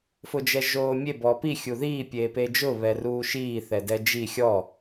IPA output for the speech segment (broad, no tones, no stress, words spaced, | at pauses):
fʊd͡ʒɛʒoːmʲe bɔpi xʲuðiː pʲeːped͡ʒʊ βɛruːʃiː θɛdɛd͡ʒi xʲɔ